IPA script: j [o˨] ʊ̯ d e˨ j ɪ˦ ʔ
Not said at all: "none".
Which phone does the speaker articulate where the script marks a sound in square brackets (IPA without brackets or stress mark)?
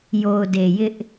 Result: o˨